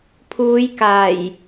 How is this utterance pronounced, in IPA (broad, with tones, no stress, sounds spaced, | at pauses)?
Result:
pʰ uː˨˧ j k aː˨˩ j